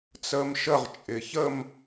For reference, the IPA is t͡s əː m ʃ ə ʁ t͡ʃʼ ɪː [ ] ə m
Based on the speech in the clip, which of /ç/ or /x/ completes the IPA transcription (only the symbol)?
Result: ç